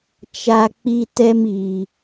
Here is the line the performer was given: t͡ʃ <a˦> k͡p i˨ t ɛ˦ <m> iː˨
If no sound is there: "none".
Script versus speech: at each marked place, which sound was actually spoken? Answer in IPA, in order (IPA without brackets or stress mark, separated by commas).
a˨, m